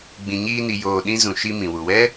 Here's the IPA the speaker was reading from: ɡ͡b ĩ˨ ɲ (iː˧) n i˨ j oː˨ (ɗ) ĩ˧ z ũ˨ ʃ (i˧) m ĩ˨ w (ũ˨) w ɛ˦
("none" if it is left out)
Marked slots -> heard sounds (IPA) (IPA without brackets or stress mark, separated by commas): iː˧, ɗ, i˧, u˨